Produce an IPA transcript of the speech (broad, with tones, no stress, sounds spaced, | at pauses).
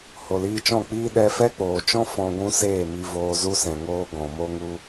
h o˨ l iː˧ t͡ʃ ɔ̃˦˨ k͡p iː˦ ɗ ɛ˧ f ɛ˦ k͡p oː˨ t͡ʃ ɔ̃˦ f ɔ̃˧ ɡʷ ũ˦ s eː˦˨ m i˧ v oː˧ z u˧ s ɛ̃˨ ŋ oː˧ ɡ ɔ̃˨ m o˧ ŋ u˧